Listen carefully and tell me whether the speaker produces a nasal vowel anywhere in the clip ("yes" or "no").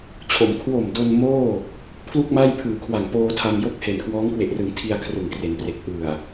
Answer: no